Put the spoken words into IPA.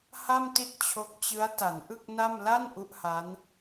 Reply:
h a˥˩ m t i˥˩ t̚ t͡ɕʰ o˦˥ k̚ t͡ɕ ɯ˦˥ a̯ t a˩˦ n ʔ ɯ˥˩ k̚ n a˥˩ m l a˥˩ n ʔ u˦˥ ʔ h a˦˥ n

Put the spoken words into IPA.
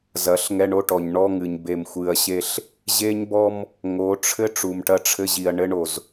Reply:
z ɐ˨˦ ɬ ŋ ɛ˦ ɳ o˦ ʈ ɔ˨ ɲ ɳ ɔ˦ ŋ ɨ˨ ɲ b e˨ m xʷ ɨ˨ ɐ̯ ɕ e˦ ɬ | ʑ e˦ ɲ b ɔ˦ m | ŋ o˨˦ ʈ͡ʂʰ ɘ˦ ʈ͡ʂ u˨ m ʈ ɐ˦ ʈ͡ʂʰ ɘ˦ ʑ i˨ ɐ̯ ɳ ɘ˦ ɳ o˨ z

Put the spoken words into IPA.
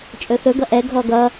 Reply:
t͡ʃʼ ɵ θ ɵ ɡ ʌ ʔ ɛ ɡʱ ɔ ɡ ʌ

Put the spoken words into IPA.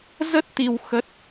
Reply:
z ə˦˥ t̚ t̪ i˧ w x ə˦˥ t̚

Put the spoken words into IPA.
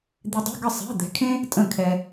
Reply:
d̪ i˧ dˤ ṳ˧˥˧ ɡ ə˥˩ sˤ ɛ̤˧˥˧ d̪ ɛ̤˧ kʰ ẽ˥ | tʼ ə̃˥˩ kʰ ɛ˧

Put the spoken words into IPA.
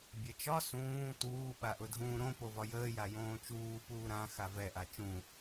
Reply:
bʲ ɛ t͡ʃ ɒ s ũː t uː ɓ a ʔ ʊ dʱ ũː ɾ õ p o v ɒ j əː j a j õː t͡ʃ uː p uː ɾ ã x a v ɛ ʔ a t͡ʃ ũ

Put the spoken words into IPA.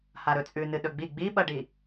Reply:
h a ɾ ɵ t͡sʼ ʉ n ɨ ɗ ɵ ɡ͡b i ɡ͡b i ɓ ɐ ɖ i

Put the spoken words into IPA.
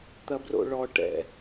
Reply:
t̪ ɐ b r o̰ ɭ ɔ ʈ ɛ̰

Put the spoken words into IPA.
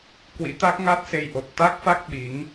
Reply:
k w ḭ˧˥ t̪ a˦˥ k̚ ŋ a˦˥ t̚ s e˧ j ʔ o˨˩ t̚ t̪ a˦˥ k̚ f a˦˥ k̚ ɓ i˨˦ ŋ

